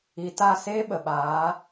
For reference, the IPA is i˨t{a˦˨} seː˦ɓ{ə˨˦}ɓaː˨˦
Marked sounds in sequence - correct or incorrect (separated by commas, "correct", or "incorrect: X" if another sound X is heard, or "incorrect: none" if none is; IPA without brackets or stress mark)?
correct, incorrect: ə˨